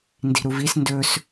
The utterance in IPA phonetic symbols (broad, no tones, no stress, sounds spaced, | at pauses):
n d i̤ ɾ u v i s n d ɵ s